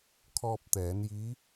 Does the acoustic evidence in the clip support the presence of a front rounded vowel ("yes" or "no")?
no